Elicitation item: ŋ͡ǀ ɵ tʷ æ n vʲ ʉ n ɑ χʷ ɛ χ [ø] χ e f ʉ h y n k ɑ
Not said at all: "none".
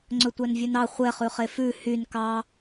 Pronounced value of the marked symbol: ʉ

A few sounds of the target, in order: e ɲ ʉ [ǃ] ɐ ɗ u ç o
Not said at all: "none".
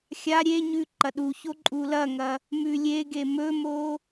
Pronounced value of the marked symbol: ǃ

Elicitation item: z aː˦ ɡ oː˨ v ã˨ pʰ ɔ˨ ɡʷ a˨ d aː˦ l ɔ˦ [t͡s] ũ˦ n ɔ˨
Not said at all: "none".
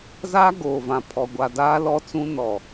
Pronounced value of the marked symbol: t͡s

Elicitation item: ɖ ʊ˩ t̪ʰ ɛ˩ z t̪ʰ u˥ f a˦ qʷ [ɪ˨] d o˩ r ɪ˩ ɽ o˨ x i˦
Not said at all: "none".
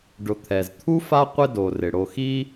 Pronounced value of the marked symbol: ɪ˦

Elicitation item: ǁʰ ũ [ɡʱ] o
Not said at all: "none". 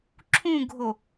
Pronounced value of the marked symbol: ɡʱ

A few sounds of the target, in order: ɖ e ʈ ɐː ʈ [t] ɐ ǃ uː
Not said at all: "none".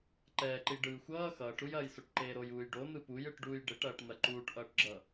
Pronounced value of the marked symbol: n̪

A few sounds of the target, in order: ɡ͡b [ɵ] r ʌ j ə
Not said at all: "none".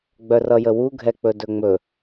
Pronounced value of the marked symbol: œ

